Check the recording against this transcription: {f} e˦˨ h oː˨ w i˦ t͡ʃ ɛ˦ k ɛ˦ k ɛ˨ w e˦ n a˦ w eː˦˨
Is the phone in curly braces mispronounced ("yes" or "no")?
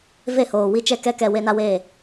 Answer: yes